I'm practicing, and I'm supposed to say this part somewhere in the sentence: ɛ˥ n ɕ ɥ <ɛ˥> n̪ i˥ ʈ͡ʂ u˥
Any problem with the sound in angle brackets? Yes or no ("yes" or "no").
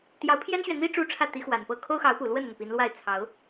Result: yes